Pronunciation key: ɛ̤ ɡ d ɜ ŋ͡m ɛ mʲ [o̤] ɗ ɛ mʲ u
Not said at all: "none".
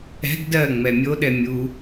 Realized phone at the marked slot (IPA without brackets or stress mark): o